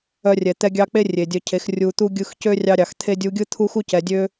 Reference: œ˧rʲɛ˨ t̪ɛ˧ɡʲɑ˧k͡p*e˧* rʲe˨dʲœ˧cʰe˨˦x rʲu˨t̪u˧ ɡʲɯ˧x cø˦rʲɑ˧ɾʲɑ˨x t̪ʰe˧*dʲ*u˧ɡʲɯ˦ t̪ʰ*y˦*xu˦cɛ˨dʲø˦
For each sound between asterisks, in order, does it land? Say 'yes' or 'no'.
no, yes, no

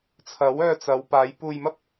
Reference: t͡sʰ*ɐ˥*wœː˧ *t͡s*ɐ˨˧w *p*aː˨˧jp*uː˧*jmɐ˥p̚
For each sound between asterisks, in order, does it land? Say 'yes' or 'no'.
no, yes, yes, yes

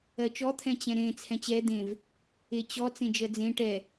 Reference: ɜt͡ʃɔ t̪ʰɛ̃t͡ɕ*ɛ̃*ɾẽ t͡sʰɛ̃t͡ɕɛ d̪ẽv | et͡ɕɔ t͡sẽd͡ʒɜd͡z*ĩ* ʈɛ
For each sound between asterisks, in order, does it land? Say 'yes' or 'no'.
yes, no

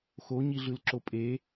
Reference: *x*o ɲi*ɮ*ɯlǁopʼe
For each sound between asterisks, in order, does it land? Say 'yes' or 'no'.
yes, yes

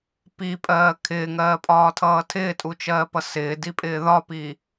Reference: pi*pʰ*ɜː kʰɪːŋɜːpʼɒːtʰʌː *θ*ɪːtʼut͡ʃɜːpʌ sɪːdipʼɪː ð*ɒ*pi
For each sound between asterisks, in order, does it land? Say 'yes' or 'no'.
no, no, yes

